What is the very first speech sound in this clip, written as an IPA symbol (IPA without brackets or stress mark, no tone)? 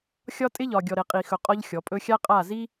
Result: xʲ